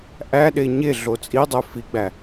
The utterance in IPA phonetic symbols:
ʔæɗe ɲe ɮot͡sʼidˤø fiɡ͡bæ

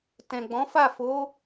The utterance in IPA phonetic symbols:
tɛ̃˨ɡ͡bɔ̃˨˦fa˦˨ fo˨˦

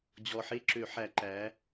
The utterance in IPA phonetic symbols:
d͡ʑɔ˨˩ħe˥˧ǁø˧˩˧ħæ˧˩˧ ǃæ˩˧

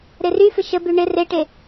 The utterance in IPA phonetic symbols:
ɾeryfɪ ʃəby ɳɪ reʈe

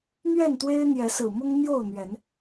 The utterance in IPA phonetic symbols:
n̪ɥɛ˥˨nt̪we˦ɪ̯ n̪jɛ˨˦sɹ̩˨˩mʊ˦ŋ n̪jo˥˨ʊ̯ n̪ɥɛ˨˦n

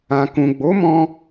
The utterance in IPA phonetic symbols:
ã˨kũ˨ɡ͡bo˨˦mɔ̃˧

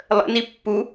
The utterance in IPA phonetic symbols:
lˠə̰ nipːu

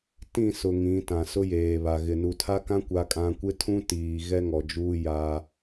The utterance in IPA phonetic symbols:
tĩ˦˨sʊ˨ ŋĩ˨˦tã˨ sʊ˦jeː˨βa˨ ɣɪ˨ nu˨tʰa˦kã˦ kʷa˦kʼã˦ kʷɪ˦tʰũ˦ tiː˨ ɣɛ˦ŋɔ˨d͡ʒuː˦ ja˦

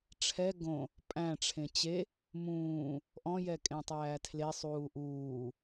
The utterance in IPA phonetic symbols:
ʈ͡ʂʰɛ ɡõ | pʼæ̃ʈ͡ʂʰẽ t͡ɕe | mũː | ʔɔ̃jɛkʼẽtˤæː tʰlesˤuː ʔuː

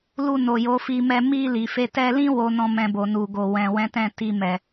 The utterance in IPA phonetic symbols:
lu˧no˨jo˨˦ fi˧mɛ˧ mi˧ li˨fe˧ tɛ˧lĩ˦ wo˦nɔ̃˦mɛ̃˧bo˨ nu˨ɡo˨ wɛ̃˨wɛ̃˨˦tɛ̃˦˨ti˧ mɛ˨

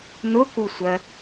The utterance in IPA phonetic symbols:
nʊkusʷɜ

